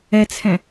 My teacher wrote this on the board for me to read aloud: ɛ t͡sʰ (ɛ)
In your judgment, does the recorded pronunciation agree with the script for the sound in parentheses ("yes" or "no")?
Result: no